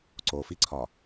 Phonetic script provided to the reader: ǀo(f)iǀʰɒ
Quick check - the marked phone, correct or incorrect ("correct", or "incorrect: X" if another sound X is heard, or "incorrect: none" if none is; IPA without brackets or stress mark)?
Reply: correct